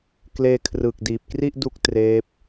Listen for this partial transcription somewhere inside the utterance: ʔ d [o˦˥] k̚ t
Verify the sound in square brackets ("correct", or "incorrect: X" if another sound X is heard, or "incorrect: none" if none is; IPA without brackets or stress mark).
incorrect: u˦˥